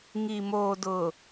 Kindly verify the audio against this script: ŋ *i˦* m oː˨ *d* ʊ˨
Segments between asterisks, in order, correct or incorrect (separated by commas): incorrect, correct